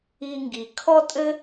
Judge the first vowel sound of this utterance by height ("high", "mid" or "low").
high